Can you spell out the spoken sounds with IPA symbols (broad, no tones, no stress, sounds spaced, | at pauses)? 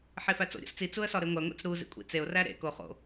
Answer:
ħ e f æ t͡s o̰ ɾʲ o̰ s t͡s i t͡s u ə̯ s ɒ ɾ e ŋʷ æ ŋʷ ḛ t͡s ɾ u z ḭ kʷʼ ḭ t͡s e ʊ̯ r æ ɾ ḛ k o χ o̰